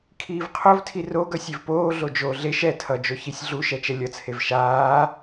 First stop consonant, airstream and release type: aspirated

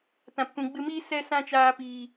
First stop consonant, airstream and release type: plain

